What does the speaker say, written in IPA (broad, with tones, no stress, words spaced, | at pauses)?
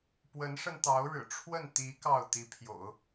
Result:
pwə˧˥nʂə˧nt̪ɑ˧˥ʊ̯ɻɻ̩˨˩ ʈ͡ʂʰwə˥˩n t̪i˧˥ kɑ˥˩ʊ̯t̪i˧˥pʰjo̰˨˩˦ʊ̯